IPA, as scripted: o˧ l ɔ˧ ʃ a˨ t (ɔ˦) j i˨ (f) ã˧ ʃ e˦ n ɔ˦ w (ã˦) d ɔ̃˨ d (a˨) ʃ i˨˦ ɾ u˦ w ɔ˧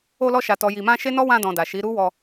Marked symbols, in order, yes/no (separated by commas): no, no, no, yes